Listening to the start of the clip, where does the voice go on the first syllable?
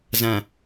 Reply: low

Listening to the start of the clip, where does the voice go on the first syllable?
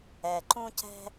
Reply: low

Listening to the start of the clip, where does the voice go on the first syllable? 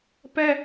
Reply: high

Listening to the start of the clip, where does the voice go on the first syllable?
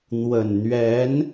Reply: low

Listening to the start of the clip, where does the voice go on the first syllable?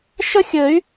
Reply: high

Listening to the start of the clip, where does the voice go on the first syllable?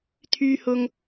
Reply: high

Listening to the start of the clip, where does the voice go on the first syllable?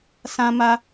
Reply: high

